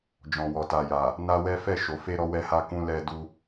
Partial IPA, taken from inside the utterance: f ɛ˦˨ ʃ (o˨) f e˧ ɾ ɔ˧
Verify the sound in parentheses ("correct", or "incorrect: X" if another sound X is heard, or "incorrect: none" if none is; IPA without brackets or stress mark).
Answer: correct